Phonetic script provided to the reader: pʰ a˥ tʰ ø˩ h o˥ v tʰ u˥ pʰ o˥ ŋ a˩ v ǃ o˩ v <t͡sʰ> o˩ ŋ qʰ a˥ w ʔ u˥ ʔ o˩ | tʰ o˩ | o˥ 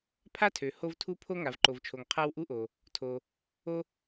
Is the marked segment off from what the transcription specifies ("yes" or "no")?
yes